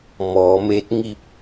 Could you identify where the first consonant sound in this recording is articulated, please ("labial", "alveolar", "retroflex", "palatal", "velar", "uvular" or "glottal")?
labial